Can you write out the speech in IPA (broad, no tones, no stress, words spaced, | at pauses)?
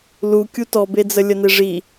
lu kʲutɔbed͡zə lʲəneʐi